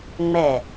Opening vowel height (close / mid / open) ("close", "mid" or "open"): mid